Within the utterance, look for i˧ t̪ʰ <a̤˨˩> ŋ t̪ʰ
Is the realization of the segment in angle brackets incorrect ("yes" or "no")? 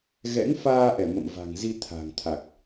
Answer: no